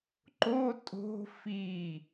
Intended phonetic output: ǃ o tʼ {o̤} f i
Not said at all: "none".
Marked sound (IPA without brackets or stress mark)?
o̤